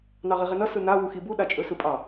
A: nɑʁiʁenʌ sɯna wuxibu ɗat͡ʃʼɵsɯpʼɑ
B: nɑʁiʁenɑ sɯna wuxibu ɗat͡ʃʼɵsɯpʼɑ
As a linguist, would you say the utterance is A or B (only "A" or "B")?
A